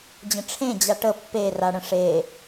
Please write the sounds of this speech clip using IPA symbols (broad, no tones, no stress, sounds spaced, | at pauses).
d͡ʑ ə̃ ʈ͡ʂʰ ẽ d͡ʑ a ʈ ə pː e r a ɽ ə̃ ʂ e